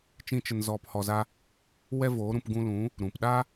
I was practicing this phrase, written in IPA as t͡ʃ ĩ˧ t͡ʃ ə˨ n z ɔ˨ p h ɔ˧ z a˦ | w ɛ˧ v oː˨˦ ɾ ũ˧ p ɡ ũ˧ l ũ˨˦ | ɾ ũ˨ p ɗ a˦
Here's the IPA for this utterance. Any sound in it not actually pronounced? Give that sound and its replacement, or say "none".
none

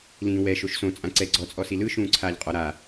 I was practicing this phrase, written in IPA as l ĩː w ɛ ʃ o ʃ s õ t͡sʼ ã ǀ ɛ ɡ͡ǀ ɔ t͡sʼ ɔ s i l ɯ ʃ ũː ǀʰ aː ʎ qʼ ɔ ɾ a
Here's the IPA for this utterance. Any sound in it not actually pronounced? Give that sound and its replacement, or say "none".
none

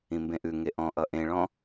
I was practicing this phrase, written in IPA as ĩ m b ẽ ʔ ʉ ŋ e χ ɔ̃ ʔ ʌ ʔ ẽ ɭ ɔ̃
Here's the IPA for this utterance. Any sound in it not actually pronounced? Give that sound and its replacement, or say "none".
χ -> ʔ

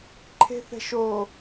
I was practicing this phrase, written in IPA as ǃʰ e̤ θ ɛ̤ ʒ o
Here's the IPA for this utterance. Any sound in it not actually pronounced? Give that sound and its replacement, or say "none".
ʒ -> ʃ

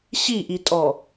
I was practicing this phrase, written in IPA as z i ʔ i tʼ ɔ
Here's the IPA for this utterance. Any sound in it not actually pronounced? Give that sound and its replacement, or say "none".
z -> ɕ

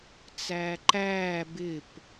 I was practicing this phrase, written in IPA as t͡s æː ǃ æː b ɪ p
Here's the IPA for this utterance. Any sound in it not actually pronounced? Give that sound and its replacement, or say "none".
none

